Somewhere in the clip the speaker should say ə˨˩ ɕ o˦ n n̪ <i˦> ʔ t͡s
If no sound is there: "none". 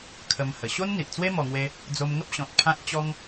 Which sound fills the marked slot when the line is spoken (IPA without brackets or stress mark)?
i˨